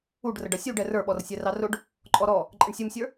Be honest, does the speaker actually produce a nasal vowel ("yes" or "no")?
no